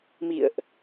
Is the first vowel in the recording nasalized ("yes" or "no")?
no